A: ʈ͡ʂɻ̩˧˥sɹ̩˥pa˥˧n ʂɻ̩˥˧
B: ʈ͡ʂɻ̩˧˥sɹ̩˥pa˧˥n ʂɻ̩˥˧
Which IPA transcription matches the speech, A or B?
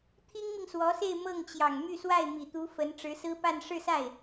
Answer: A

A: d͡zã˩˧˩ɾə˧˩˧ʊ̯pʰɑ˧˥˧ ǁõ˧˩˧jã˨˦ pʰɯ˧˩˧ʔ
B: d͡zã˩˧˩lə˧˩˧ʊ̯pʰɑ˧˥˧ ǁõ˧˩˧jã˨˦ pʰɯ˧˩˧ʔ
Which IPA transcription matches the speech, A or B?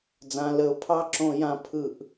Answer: B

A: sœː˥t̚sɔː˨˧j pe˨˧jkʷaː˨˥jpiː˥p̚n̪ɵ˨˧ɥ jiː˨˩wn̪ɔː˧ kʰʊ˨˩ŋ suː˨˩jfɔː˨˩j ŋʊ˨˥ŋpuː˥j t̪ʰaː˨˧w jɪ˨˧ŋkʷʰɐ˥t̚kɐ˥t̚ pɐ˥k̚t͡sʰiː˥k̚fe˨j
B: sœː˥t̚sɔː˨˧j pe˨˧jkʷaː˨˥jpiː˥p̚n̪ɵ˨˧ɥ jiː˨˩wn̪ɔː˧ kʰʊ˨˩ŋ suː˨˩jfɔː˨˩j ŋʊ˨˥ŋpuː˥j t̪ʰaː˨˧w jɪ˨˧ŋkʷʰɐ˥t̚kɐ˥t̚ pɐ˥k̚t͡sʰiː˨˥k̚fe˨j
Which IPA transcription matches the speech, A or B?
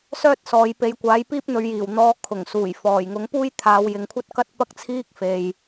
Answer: A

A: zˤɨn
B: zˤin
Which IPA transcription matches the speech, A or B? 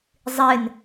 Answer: A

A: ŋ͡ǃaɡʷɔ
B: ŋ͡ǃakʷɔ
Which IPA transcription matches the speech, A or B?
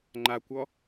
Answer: B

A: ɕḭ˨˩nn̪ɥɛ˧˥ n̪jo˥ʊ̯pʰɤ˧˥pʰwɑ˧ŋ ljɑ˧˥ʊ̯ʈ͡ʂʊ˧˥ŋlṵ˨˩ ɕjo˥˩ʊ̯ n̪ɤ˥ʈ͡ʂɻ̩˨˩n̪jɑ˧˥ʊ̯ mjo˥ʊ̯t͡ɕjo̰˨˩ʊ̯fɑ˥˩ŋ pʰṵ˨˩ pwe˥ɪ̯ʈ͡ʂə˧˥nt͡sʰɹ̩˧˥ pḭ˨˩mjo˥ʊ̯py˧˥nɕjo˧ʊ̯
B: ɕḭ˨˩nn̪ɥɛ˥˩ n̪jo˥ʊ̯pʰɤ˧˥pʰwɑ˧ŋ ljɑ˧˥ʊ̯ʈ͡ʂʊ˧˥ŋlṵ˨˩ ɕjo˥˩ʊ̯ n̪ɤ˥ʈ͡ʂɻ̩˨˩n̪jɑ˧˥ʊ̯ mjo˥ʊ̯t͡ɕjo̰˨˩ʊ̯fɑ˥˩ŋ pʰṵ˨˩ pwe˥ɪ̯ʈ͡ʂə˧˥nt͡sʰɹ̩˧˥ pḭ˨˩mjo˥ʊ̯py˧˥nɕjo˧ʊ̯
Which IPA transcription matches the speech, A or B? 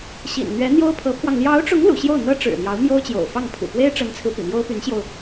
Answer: A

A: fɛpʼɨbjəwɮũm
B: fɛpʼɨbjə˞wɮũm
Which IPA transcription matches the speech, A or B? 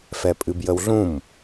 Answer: A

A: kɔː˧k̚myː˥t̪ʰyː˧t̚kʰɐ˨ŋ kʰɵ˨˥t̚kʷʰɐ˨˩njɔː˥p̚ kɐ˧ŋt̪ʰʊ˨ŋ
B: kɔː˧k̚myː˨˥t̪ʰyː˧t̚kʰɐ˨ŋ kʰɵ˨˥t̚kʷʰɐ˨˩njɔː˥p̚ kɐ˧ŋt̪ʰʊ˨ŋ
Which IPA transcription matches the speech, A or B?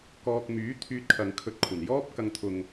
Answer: B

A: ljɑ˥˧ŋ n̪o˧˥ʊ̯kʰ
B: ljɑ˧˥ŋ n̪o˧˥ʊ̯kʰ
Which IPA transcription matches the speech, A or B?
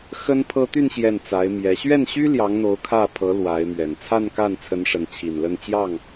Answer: B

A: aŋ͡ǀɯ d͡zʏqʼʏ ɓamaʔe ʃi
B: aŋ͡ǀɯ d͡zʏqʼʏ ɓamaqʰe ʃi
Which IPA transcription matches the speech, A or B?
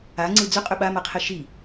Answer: B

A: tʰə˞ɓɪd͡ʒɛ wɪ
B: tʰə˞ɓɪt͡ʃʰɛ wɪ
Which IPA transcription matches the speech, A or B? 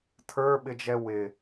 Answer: A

